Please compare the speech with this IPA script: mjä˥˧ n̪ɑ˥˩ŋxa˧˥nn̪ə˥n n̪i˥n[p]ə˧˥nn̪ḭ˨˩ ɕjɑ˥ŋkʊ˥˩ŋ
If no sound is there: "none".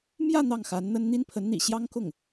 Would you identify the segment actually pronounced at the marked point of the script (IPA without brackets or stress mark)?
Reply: pʰ